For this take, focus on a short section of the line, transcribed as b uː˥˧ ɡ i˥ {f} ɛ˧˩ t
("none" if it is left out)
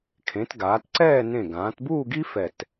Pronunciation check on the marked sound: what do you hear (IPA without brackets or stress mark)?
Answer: f